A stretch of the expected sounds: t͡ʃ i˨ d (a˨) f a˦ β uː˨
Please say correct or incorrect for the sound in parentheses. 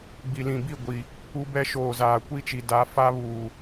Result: incorrect: a˨˦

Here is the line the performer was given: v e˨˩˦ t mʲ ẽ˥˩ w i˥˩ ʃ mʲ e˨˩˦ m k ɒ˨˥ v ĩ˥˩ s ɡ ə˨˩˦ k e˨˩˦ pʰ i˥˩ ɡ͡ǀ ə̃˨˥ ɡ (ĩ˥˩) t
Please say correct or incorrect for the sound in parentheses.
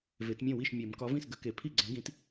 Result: incorrect: ĩ˨˥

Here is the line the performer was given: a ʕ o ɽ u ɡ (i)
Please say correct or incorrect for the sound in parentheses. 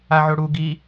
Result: correct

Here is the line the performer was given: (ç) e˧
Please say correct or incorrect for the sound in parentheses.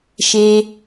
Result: incorrect: ʃ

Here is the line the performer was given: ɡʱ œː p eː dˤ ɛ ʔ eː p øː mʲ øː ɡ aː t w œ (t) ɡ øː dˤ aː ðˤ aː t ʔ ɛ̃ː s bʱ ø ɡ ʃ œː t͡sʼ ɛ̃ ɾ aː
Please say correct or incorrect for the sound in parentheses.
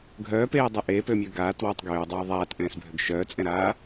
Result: incorrect: tˤ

